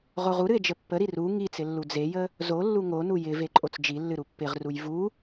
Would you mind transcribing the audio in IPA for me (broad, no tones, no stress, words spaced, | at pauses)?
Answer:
ʁoʁuɾɨe̯ d͡ʒəpːəɾi ru ŋit͡sɪ lːud͡zejə | zolːu ŋonu jɪ veǃʼot͡sd͡ʒilːɨ ɾupːɪʁruj vu